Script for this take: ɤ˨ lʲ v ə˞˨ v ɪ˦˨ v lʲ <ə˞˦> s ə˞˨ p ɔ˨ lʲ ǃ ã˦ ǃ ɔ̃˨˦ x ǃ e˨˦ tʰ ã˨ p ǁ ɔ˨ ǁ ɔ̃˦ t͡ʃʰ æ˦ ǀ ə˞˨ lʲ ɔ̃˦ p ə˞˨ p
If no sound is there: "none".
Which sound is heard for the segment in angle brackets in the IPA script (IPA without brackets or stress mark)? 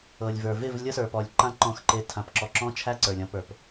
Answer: ɤ˦